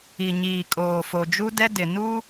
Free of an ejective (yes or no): no